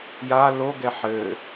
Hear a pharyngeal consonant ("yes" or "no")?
yes